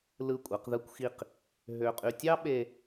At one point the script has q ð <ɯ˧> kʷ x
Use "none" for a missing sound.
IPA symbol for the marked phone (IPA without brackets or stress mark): ɯ˧